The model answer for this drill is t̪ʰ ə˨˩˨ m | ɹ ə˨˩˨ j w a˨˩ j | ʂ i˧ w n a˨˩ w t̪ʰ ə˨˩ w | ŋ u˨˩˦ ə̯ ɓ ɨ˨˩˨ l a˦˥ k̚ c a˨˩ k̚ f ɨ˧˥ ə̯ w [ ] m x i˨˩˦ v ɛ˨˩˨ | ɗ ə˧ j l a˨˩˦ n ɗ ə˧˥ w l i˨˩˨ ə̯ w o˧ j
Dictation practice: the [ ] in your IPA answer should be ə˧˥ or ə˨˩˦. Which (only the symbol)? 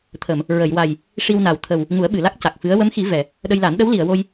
ə˧˥